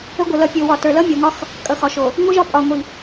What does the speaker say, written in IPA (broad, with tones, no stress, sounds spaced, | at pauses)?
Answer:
ə˦ ɡʷ ə˨ l ʌ˨˦ pʲ o˨ w ɒ˨ t ə˞˨ l ʌ˦ mʲ o˨ ŋ ɒ˦ x | kʼ ʌ˨ x ɒ˨ ʃ o˨ | ŋʷ ɯ˦ ʒ ɒ˦ pʼ ɒ˨ ŋʷ i˨